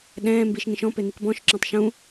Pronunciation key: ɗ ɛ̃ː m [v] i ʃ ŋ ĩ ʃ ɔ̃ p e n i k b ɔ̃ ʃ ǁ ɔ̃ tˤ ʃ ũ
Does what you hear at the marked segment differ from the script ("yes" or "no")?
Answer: yes